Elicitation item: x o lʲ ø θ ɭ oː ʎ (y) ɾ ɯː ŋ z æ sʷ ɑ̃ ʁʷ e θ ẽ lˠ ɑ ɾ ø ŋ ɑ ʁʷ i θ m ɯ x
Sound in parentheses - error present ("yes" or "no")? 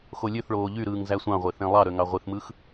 no